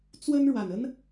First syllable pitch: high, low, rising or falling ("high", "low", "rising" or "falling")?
high